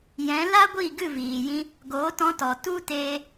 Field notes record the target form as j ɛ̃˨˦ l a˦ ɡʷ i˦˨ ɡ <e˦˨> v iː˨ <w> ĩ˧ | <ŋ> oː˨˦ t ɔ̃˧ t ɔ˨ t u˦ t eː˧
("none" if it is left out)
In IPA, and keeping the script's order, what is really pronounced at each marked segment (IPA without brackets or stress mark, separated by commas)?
ɨ˦˨, j, ɡ